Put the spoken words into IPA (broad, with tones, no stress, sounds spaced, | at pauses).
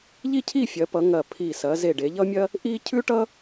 ʎ i˥˧ cʰ i˥˧ fʲ ɐ˩˧ p ʌ˩˧ ŋ ɐ˧˩ pʰ i˧˩ s ɐ˩˧ z e˧˩ ɖ e˩˧ ʎ ʌ˥ mʲ ɐ˥ | ʔ i˥ cʰ ʉ˥ ʈ ʌ˥